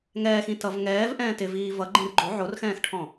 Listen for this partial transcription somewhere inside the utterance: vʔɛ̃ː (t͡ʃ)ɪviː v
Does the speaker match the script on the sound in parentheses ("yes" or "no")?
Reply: no